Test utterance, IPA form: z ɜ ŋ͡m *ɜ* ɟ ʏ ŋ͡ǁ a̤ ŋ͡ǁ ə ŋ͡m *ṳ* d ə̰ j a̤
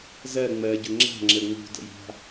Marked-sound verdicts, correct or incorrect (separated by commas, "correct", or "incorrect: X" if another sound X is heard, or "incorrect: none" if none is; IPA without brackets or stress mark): correct, correct